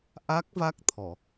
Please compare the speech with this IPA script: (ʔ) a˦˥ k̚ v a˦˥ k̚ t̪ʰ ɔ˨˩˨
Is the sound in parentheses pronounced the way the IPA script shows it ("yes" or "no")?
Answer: yes